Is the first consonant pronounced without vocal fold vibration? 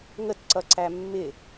no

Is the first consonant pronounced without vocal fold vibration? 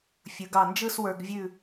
yes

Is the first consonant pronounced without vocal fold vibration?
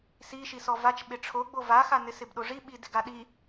yes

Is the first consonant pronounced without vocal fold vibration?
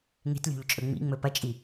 no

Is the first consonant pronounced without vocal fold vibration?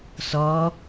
yes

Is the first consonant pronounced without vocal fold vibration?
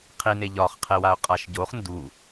yes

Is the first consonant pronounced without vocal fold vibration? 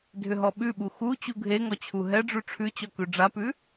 no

